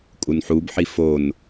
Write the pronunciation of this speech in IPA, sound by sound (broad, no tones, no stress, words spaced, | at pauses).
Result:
kʼunħubħi fon